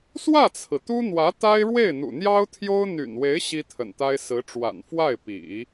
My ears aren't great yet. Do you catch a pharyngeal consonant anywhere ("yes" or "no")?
no